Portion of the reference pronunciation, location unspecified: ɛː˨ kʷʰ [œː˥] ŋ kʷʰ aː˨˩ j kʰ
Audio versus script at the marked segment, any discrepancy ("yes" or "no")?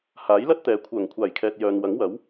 yes